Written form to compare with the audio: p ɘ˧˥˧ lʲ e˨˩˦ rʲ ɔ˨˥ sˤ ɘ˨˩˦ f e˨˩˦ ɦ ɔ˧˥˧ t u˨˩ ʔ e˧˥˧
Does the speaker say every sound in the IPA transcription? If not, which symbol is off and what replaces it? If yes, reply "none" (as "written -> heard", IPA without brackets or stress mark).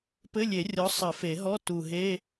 ʔ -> ɦ